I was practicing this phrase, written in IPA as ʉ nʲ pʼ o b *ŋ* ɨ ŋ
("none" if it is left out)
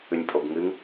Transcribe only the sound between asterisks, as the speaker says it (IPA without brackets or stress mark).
ŋ